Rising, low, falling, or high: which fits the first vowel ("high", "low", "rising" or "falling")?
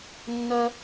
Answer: high